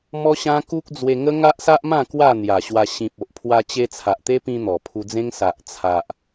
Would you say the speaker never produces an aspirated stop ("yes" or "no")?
no